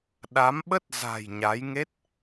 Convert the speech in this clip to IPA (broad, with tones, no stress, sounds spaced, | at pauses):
ɗ a˨˦ m ɓ ə˦˥ t̚ z a̤˨˩ j ɲ a˨˦ j ŋ e˦˥ t̚